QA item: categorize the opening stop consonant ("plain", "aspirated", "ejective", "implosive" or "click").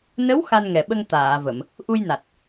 implosive